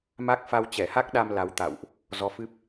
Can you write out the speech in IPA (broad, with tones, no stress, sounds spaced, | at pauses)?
m a˦˥ k̚ f a˧ w t͡ɕ ɛ˧˩ h a˦˥ k̚ ɗ a˧ m l a˨˦ w t̪ a̰˧˨ w ʔ | z ɔ˨˦ f ɨ˦˥ p̚